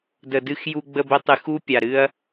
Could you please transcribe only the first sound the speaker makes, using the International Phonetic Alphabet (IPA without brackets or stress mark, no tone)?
d